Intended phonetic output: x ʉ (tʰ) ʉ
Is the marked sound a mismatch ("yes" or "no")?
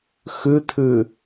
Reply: no